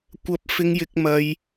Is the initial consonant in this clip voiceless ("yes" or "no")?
yes